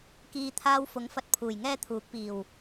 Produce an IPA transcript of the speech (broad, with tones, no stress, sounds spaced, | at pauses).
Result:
k iː˨ t̪ʰ aː˧ w f ʊ˨˥ ŋ f ɐ˧ t̚ pʰ uː˨˩ j ŋ ɛː˥ t̪ʰ uː˨˥ k̚ p iː˨˩ w